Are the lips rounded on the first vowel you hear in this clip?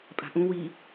no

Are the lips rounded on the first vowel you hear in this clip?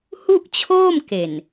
yes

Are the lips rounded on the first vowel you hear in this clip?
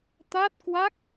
no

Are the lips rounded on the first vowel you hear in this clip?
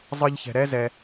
no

